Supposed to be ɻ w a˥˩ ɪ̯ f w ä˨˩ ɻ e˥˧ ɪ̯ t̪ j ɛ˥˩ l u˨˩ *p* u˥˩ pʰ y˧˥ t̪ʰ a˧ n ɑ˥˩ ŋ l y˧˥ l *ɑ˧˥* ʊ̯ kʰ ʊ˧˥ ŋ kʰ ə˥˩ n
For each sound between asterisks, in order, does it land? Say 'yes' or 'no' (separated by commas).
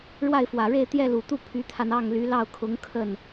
no, no